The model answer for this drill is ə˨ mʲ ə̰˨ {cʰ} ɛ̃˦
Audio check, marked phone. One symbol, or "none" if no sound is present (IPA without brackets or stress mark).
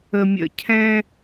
cʰ